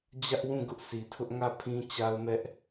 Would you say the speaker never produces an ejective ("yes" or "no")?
yes